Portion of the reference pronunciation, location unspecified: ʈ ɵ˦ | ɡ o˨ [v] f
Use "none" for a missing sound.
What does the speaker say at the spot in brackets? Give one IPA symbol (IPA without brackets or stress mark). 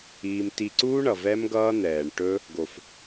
none